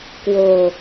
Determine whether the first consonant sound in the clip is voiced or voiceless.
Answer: voiceless